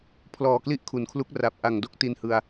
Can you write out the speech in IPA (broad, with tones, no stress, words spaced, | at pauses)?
pʰlɔː˨˩kli˦˥ʔ kʰu˩˦nkʰlu˦˥k̚ra˨˩p̚ ʔa˨˩ŋdo˥˩k̚ ti˧nhɯ˧a̯